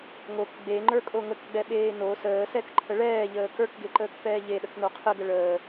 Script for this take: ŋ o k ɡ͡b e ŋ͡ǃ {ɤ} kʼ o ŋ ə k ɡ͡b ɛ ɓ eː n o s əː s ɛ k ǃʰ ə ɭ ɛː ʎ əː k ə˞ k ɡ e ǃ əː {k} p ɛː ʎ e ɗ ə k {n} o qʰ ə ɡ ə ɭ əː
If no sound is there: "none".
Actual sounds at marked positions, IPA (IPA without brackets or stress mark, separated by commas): ə˞, k, n